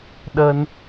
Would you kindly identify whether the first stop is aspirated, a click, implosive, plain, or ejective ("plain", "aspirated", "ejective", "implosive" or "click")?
implosive